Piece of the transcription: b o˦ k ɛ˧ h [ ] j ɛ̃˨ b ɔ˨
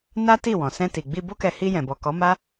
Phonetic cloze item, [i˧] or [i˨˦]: i˧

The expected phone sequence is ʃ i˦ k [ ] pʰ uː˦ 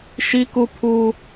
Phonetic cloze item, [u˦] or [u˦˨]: u˦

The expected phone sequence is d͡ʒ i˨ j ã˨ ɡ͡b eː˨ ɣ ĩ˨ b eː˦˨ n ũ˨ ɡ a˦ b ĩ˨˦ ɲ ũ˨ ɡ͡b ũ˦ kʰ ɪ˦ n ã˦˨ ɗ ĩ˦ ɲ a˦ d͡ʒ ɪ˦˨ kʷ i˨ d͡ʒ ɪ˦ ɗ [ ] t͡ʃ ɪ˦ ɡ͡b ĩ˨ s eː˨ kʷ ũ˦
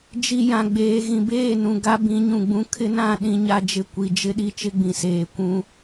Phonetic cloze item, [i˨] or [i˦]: i˦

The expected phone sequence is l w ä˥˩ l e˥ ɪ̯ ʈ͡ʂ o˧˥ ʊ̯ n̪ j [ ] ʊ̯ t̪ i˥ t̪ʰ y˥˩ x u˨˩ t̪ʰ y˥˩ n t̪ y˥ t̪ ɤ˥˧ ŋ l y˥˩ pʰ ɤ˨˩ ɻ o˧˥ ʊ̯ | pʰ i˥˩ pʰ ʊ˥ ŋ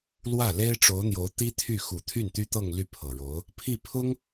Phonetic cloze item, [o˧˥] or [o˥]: o˧˥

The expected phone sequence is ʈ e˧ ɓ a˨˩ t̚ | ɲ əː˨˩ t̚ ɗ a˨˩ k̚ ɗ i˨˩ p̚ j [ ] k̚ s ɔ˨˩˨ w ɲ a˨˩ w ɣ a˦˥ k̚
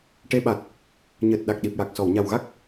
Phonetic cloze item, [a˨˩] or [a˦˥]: a˨˩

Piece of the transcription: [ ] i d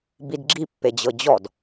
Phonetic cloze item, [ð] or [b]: b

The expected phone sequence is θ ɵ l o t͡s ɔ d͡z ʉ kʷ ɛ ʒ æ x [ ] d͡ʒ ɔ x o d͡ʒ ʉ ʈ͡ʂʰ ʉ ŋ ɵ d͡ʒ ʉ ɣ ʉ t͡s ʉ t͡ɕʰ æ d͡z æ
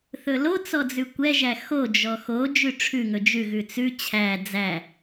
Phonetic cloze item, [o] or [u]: o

